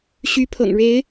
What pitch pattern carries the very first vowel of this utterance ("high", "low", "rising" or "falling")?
rising